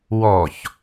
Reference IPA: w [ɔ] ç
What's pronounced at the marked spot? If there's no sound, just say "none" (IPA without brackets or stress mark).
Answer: ɔ